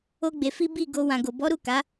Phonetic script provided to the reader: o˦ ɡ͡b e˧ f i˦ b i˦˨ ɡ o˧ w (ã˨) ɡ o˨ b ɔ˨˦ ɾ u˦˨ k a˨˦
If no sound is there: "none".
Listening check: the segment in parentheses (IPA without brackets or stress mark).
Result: ã˨